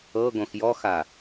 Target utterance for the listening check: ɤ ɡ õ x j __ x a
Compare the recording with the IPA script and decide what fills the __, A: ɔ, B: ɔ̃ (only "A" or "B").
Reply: A